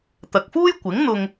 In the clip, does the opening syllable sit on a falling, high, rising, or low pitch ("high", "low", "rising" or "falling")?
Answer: low